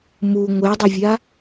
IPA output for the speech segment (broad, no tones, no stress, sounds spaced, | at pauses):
m u ŋʷ e dˤ ɘ vʲ a